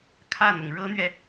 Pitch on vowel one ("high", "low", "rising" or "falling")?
falling